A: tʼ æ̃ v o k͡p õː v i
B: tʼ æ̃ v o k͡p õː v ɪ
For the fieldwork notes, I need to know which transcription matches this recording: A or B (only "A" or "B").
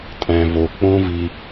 A